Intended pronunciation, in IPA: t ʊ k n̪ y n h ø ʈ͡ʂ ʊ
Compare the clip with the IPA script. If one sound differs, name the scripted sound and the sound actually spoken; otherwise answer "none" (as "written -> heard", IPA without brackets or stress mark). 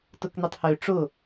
n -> tˤ